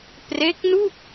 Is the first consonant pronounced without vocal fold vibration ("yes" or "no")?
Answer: yes